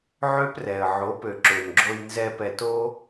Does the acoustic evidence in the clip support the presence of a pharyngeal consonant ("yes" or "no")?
yes